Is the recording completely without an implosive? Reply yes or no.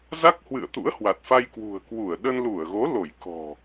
no